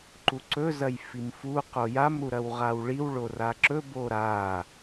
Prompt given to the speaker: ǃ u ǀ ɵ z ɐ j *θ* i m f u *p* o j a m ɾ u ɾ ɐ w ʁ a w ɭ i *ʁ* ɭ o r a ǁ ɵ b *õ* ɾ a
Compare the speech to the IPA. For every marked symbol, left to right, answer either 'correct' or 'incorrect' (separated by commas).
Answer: incorrect, incorrect, incorrect, incorrect